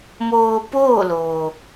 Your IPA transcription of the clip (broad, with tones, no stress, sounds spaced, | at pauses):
m oː˧ p oː˥˨ l oː˩